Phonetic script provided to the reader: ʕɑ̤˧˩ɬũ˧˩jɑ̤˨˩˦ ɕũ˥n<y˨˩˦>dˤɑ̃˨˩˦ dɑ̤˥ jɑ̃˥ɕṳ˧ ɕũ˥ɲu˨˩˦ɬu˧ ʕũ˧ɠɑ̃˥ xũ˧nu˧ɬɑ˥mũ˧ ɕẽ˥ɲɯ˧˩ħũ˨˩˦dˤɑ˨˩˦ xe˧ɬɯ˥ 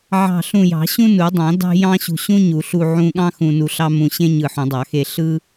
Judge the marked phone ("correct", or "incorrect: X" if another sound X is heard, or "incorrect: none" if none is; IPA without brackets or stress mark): incorrect: u˨˩˦